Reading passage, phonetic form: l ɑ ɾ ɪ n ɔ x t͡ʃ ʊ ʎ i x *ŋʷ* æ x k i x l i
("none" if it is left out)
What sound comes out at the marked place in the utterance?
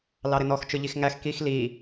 ŋ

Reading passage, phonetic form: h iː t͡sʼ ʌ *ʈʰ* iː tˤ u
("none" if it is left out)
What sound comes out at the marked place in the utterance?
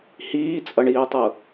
ɳ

